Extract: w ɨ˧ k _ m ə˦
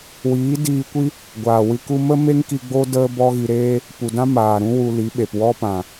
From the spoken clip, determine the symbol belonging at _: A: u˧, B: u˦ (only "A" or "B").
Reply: A